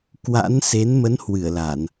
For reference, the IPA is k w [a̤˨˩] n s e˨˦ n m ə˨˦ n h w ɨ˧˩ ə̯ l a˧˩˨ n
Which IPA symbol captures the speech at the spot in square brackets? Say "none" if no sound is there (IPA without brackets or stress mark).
a̰˧˥